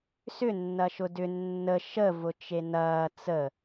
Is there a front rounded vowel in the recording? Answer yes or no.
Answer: yes